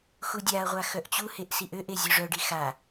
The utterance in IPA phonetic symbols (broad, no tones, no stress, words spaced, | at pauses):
xudʲaɐ̯ʁʷa xœʔt͡ɕuheʔ siʔøʔe zʲoʐœɖi xa